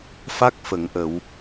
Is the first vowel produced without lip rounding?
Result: yes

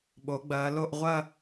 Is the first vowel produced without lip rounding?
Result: no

